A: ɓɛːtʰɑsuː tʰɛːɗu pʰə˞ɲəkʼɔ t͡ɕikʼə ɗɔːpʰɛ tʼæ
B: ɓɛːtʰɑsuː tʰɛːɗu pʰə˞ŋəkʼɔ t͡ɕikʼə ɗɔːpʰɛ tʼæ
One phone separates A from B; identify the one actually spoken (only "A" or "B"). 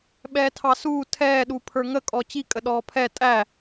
B